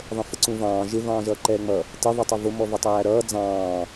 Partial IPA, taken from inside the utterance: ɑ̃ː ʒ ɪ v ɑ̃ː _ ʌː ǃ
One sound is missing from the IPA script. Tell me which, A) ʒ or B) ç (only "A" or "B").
A